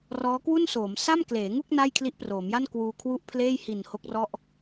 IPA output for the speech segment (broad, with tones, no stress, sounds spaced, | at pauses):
r ɔː˦˥ k w u˥˩ n s oː˩˦ m s a˥˩ m k l eː˩˦ ŋ u˥˩ k̚ n a˥˩ j kʰ l i˦˥ ʔ p r oː˩˦ m j a˥˩ n k w uː˧ kʰ w u˥˩ ʔ pʰ l eː˥˩ j h i˨˩ n h o˦˥ k̚ r ɔ˥˩ ʔ